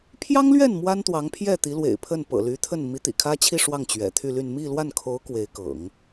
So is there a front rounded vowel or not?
yes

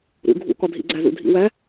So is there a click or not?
yes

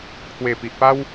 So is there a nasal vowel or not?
no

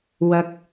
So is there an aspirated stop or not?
no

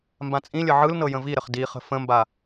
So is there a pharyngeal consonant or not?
yes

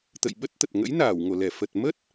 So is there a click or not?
no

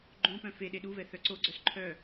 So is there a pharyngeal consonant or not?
no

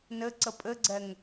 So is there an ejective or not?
yes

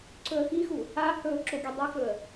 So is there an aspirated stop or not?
no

